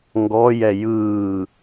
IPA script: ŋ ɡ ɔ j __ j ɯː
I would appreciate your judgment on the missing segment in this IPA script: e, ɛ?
ɛ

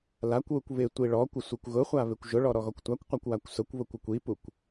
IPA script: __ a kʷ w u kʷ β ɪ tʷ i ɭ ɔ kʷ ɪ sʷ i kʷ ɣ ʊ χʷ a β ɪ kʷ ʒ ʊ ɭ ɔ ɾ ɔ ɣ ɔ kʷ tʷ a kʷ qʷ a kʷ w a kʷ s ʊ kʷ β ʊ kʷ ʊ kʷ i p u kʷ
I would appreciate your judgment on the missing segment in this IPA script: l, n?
l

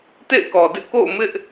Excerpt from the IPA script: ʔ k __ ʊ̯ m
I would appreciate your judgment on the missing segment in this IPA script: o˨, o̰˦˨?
o̰˦˨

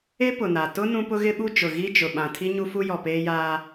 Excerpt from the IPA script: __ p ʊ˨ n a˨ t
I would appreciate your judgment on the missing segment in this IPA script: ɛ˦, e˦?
e˦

